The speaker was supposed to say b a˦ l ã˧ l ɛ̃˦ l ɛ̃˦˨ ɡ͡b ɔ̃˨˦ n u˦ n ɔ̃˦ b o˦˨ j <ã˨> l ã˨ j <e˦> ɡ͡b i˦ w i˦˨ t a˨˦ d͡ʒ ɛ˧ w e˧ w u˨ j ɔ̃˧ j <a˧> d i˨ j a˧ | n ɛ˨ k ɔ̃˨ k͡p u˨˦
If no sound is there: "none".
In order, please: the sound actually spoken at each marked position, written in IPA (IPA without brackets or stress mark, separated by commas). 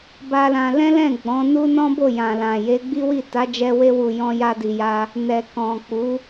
ã˨, e˨˦, a˧